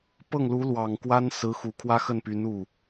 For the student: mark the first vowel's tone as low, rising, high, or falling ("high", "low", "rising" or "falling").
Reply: falling